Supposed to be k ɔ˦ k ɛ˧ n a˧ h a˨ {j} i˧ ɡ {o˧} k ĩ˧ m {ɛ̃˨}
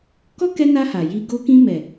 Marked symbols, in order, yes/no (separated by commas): yes, yes, no